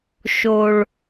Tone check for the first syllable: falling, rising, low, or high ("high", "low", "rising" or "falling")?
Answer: high